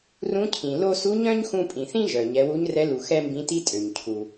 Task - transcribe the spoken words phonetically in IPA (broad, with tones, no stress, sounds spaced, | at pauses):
r ũ˧˥ cʰ ĩ˩ l o˧ s u˧˥ ɲ œ̃˥ ɲ x ũ˧ pʼ ĩ˩ θ ĩ˥ ʒ œ˩ ɲ ɛ˩˧ w u˧˥ ɲ r ɛ˧˥ l u˩ x ɛ˥ m b ĩ˧˥ t i˥ tʼ ø˩ ɲ cʰ u˩